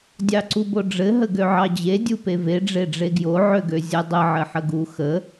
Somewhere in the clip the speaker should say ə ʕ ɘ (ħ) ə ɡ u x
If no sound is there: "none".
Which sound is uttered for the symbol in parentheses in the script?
ħ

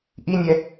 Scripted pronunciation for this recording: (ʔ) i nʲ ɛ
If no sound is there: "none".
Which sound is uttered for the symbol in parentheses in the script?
ʔ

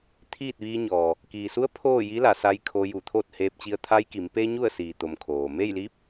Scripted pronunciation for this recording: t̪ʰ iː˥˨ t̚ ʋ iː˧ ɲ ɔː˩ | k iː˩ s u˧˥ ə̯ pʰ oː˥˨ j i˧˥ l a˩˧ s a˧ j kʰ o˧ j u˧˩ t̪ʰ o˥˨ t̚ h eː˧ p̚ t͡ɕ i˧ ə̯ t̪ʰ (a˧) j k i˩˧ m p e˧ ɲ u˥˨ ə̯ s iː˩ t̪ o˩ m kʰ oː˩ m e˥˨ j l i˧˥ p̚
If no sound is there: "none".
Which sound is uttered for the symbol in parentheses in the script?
a˧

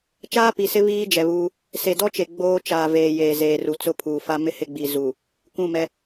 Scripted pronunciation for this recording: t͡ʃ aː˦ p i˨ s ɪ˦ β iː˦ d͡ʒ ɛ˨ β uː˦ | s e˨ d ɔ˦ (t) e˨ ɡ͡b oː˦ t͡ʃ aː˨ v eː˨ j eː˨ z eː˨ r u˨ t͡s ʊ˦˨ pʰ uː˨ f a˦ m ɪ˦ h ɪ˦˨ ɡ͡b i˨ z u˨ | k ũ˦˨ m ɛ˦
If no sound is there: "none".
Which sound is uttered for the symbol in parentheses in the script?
t͡ʃ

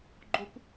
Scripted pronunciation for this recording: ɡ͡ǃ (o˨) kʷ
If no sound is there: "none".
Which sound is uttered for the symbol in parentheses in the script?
o˦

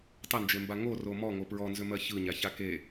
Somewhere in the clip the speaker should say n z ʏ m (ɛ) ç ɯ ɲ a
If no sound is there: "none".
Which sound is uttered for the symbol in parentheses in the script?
ɜ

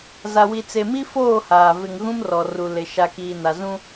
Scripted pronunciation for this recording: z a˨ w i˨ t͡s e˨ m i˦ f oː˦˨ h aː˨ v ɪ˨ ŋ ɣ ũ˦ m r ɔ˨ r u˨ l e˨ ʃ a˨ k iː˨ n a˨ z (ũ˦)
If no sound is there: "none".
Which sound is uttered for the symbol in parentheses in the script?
ũ˦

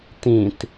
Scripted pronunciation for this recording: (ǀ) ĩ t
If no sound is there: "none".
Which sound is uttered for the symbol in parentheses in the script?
t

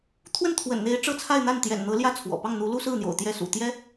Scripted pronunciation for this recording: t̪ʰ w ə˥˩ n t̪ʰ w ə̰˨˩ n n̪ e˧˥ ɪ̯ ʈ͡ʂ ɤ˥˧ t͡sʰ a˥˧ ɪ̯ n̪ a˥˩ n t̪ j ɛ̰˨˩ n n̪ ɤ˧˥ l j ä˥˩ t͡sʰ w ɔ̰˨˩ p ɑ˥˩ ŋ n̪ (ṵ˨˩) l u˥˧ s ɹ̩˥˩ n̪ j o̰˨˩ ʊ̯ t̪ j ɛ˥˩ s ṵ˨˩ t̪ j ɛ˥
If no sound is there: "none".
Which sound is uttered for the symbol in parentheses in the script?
u˧˥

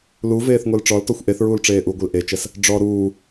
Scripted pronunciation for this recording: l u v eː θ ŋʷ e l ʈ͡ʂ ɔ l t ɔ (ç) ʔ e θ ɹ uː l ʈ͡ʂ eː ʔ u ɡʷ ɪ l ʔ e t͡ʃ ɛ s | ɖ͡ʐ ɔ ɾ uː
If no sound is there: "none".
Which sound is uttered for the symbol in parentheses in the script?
xʷ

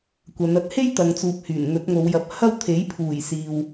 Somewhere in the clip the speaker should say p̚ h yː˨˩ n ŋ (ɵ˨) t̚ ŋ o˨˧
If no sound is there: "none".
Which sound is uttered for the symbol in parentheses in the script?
ɵ˨˥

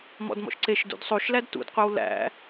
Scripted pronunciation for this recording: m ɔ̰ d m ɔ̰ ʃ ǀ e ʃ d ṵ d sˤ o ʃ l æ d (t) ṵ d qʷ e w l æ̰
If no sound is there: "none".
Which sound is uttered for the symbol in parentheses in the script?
t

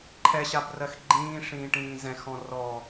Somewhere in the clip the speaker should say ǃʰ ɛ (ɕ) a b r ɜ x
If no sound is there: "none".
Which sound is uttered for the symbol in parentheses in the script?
ɕ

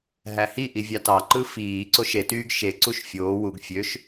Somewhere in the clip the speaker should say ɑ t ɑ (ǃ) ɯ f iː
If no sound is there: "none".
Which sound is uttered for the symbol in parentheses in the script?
ǃ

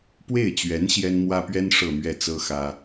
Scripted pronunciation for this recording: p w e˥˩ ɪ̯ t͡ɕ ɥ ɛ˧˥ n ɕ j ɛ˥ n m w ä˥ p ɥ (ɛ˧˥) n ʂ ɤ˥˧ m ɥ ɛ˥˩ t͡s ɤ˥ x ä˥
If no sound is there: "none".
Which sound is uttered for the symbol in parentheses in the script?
ɛ˥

